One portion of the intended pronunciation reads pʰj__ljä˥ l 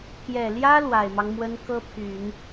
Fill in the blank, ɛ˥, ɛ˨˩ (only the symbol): ɛ˨˩